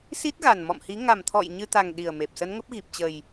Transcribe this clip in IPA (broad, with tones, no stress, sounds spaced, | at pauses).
s i˦˥ t̚ ɣ a˨˩ n m ɔ̰˧˨ m h i˨˦ ŋ a˨˩ m t̪ʰ ɔ̰˧˨ j ɲ ɨ˧ t̪ a˨˩ ŋ ɗ i˨˩ ə̯ m e˨˩ p̚ s ə˨˦ n ŋ ə˦˥ p̚ ɣ i˨˩ p̚ t͡ɕ ə˨˩ j